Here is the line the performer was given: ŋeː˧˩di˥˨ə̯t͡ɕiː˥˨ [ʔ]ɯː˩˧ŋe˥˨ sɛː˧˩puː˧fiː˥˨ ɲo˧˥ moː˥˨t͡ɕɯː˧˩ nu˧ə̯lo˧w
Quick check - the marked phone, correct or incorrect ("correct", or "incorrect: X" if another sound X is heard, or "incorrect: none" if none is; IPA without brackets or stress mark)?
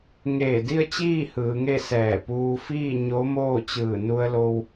incorrect: h